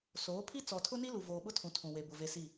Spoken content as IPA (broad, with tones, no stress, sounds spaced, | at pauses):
s oː˨˦ pʰ i˦ t͡s ɔ˨ tʰ ʊ˦ n i˦ l u˨ v oː˨ ɓ ʊ˦ tʰ ũ˨ tʰ ũ˨ w e˨ b ʊ˨ v e˨ s i˦˨